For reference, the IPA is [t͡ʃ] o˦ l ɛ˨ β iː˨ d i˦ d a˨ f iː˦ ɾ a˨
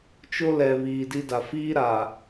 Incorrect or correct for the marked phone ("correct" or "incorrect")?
correct